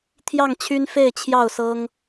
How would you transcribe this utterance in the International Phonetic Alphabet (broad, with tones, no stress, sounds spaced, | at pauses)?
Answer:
t̪ʰ j ɑ˥˨ ŋ t͡ɕʰ y˦ n f e˥˨ ɪ̯ t͡ɕʰ j ɑ˥˨ ʊ̯ s ɤ˦ ŋ